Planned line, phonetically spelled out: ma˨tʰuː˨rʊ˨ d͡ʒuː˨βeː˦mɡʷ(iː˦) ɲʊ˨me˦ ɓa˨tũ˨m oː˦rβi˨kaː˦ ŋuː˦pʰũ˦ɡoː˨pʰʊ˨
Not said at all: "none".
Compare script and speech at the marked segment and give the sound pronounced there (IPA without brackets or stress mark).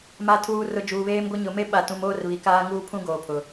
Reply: i˦